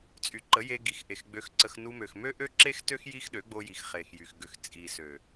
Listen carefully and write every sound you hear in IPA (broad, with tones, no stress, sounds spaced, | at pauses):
t͡sʼ y˨ ǃ ə˨˦ j e˧ ɡ i˨ x ʔ e˨ x ɡ͡b ø˧ x ǀ ə˧ x n u˧ m ø˨ x m ø˦ ʔ ø˦ ǁ e˦ x t ø˦ x j i˦ x ɗ ø˨˦ ɡ͡b o˧ j i˨ x χ e˨ x j y˨ x ɡ ø˨ x t͡sʼ i˨ s ø˨